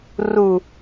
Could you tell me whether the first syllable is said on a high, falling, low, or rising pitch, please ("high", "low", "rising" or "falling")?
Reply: low